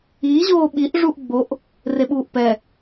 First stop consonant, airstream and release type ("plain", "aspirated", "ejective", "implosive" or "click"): implosive